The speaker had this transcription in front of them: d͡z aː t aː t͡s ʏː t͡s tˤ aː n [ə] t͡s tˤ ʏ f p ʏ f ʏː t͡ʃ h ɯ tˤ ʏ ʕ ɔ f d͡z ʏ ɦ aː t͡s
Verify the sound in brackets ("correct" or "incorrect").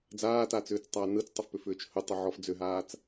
incorrect